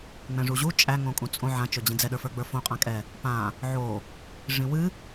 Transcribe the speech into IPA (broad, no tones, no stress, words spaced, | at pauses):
ŋ͡mɛ̃ʐuʑu t͡ʃʼæ ŋõkʼũt͡sʼõ ʕã t͡ʃɵd͡ʑĩd͡zɛ ɗə˞fə˞ɡ͡bə˞fõ qʼãkʼɛ | pã | ʕo | ʐĩwɨ